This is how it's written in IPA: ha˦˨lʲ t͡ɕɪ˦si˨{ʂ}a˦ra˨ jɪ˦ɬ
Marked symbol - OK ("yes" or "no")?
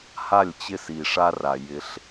yes